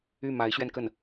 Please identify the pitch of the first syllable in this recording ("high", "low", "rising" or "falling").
falling